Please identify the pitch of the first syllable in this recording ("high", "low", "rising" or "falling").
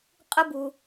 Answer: high